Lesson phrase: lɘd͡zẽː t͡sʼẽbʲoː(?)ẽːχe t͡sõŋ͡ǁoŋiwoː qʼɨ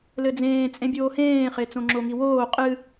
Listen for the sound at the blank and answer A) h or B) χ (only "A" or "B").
A